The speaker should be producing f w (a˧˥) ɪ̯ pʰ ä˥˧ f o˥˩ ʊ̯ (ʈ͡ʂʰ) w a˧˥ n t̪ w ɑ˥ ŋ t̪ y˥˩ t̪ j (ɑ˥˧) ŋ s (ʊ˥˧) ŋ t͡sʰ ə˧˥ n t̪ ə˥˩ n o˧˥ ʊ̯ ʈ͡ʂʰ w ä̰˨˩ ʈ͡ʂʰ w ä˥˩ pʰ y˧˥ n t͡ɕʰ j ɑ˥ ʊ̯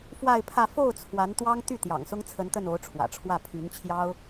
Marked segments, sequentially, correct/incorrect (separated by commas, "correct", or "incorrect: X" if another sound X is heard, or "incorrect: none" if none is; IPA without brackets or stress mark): incorrect: a˥˧, incorrect: t͡sʰ, incorrect: ɑ̰˨˩, incorrect: ʊ˥